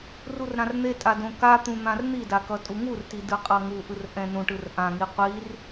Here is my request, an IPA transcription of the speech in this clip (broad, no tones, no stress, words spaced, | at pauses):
rurɾãrn̪etʼa dõkat̪ũ n̪ãrn̪ida kʌtʼuŋurti dɯqʼʌŋuʔɯr ʔɛ̃nũʈɯr ʔãŋi qʷir